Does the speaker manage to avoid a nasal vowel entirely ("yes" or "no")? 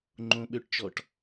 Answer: no